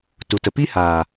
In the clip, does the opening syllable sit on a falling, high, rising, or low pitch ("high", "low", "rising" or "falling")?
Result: low